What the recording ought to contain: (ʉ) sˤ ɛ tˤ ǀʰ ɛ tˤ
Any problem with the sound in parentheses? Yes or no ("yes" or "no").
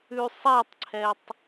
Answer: no